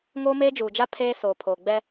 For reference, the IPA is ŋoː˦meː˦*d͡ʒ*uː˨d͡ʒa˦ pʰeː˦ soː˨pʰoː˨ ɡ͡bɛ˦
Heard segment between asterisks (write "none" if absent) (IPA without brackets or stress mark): d͡ʒ